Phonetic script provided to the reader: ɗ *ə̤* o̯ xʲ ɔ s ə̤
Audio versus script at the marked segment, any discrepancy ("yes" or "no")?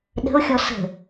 no